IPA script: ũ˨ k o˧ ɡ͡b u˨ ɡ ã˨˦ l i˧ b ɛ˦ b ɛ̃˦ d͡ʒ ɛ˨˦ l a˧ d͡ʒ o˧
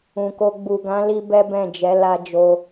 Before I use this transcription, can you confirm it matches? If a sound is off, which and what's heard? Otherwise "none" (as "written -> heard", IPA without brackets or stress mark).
ɛ̃˦ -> ɛ̃˦˨